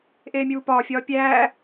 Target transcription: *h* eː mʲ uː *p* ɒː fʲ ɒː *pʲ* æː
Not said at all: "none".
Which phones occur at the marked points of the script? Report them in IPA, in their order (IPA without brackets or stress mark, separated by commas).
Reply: ʔ, p, pʲ